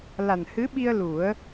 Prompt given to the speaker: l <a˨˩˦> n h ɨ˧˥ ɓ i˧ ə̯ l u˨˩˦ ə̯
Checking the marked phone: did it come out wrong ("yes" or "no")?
yes